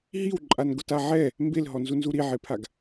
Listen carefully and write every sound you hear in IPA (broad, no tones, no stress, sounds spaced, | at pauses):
ɦ i w ǃʼ a n ɡ ʊ t a ʕ ɛ | m b e l ɦ ɔ n z u n z u ɾ i ʕ e pʰ a ɡ